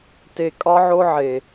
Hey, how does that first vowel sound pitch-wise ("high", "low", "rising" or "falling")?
low